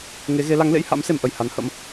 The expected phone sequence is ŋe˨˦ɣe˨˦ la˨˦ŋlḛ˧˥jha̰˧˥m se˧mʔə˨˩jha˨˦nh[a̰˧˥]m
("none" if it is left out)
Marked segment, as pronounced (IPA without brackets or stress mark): ə̰˧˥